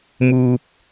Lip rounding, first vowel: rounded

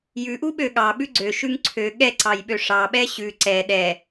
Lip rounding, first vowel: rounded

